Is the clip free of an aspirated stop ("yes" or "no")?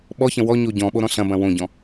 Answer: yes